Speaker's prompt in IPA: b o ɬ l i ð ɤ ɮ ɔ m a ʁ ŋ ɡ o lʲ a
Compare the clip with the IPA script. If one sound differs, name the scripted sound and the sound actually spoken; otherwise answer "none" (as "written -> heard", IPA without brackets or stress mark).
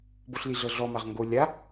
ð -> ɮ